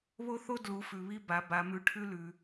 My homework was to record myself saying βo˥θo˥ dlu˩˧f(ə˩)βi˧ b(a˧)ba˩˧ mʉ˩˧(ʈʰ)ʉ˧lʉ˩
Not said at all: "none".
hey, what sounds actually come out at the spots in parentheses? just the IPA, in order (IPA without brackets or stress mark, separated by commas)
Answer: ʉ˩, a˩˧, ʈʰ